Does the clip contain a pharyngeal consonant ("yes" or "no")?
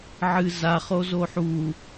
yes